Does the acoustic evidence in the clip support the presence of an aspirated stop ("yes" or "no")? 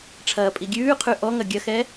yes